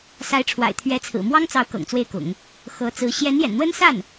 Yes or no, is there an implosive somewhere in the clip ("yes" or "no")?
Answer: no